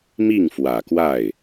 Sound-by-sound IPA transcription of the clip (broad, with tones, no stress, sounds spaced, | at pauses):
m i˥˩ ŋ f w ä˨˩ k w a˥˩ ɪ̯